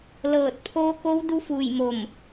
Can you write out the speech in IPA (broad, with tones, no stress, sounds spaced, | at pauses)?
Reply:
l ɤː˧˩ t̚ pʰ oː˧˥ k o˧˥ w d u˧˥ f uː˧˩ j m o˧˩ m